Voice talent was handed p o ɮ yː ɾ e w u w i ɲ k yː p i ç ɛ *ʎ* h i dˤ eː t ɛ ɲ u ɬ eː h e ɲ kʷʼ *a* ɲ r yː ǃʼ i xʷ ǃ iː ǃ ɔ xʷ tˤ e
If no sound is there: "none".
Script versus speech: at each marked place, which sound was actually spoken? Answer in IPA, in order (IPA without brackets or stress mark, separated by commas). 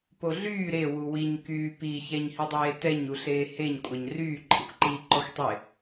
ɲ, ɑ